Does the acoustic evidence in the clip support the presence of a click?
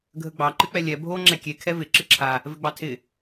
yes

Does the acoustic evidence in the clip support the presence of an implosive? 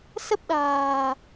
yes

